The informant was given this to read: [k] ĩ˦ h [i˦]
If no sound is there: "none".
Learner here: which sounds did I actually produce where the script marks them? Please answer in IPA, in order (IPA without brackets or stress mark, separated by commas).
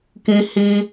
k, i˦